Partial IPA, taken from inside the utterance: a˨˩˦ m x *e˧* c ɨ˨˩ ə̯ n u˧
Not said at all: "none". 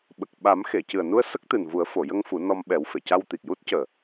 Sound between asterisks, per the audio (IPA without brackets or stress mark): e˨˩˨